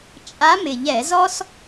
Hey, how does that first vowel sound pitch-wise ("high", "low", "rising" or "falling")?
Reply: rising